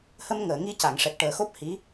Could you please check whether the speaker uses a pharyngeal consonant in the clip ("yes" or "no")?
no